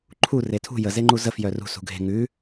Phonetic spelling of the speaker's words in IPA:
ǃʰ u r e tʰ ṳ j ə z e ŋ͡ǃ u z ə f j œ r ṳ s ṳ ɡʱ e̤ ŋ ʉ

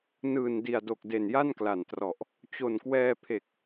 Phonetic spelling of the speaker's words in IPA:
n ɯː˨˩ n d i˨˩ a̯ d o˨˩ k̚ d e˨˩ n j a˥˩ n k l a˨˩ n t r ɔ˨˩ ʔ | t͡ɕ o˨˩ n k w ɛː˧ pʰ e˨˩ k̚

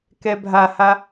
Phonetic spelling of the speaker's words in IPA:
k ɛ bʱ a h a

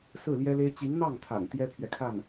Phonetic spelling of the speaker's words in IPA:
s ɹ̩˥˩ l j ɛ˥ l e˥ ɪ̯ t͡ɕ i˧˥ ŋ n̪ ɑ˥˩ ŋ t̪ʰ a̰˨˩ n t̪ j ɛ˥ pʰ ɥ ɛ˨ kʰ a˥˩ n

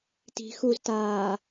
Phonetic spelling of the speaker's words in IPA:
t i̤ x u z t aː

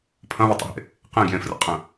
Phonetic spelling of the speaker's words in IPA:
pʰ ɐ̃ β ɐ tˤ ə̰ ɦ ḛ | q ẽ ɡ j ẽ f r ə̰ qʼ ə̃

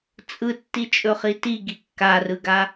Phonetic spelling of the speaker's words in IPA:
t͡sʼ ɯ tː i t͡ʃʼ ɵ χ i t i ɡ i kː a r ɯ ɡ a

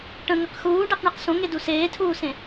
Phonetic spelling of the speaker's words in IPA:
ʈ ə̃ ŋ ə q x uː ɖ e q ɳ i q s õ ŋ e d u s eː tʰ uː s ẽ

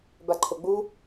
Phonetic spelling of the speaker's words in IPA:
b a ǃʰ o ɡ͡b u

